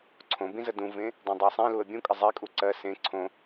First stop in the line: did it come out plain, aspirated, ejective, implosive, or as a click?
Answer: click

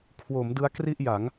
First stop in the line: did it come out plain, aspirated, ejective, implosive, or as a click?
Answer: aspirated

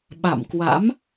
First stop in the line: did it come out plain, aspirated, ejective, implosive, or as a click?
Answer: implosive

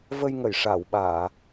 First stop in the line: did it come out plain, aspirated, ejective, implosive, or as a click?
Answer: implosive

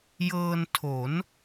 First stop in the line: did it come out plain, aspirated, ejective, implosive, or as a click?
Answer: aspirated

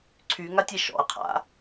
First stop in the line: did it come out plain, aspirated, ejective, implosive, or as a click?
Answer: click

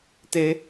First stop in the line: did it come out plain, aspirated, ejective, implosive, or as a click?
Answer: plain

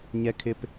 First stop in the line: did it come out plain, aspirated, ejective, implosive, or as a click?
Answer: aspirated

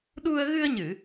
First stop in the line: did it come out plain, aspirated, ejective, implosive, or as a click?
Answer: implosive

